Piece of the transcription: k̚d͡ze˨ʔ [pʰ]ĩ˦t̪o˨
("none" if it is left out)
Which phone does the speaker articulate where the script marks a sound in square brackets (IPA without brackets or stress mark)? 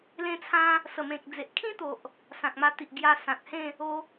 kʰ